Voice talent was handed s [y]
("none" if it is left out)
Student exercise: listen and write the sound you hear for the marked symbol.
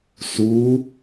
u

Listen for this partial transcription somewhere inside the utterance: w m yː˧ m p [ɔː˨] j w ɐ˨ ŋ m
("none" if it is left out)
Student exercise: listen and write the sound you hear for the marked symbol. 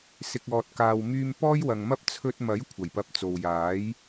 ɔː˥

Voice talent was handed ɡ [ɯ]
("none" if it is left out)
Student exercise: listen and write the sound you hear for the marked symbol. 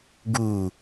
u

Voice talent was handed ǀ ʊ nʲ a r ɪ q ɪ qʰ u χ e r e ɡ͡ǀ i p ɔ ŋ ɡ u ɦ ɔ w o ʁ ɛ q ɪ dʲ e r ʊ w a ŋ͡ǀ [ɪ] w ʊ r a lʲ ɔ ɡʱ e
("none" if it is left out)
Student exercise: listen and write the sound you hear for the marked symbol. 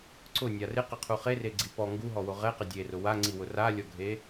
i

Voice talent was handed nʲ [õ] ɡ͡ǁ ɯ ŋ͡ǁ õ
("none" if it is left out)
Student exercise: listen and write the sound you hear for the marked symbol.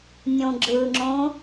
õ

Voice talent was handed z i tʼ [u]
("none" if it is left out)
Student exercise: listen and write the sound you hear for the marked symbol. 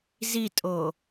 o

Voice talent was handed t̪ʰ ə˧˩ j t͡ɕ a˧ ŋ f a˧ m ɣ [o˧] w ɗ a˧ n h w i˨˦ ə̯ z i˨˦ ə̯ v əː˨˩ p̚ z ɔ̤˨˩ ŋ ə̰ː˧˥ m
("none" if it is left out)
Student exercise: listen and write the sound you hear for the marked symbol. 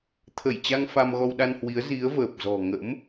ɔ˧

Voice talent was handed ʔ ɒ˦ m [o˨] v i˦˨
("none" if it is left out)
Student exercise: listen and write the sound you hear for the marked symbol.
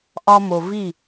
o˨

